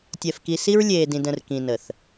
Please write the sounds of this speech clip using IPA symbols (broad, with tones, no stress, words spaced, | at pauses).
tʲɛ˨fki˨ si˦ɹlʲeː˨dĩ˨d ə̃˨r kĩ˨ nə˨θ